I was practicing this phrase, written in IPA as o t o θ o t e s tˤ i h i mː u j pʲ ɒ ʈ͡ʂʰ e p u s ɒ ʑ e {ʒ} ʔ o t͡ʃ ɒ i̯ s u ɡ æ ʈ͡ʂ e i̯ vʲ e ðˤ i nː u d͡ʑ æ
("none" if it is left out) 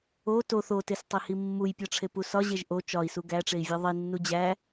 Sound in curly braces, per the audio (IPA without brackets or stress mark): ʒ